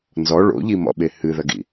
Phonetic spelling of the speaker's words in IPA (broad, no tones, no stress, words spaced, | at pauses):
nzɔ ɭo̰ʎimɔ̰ɓe hɨðɐɡḭ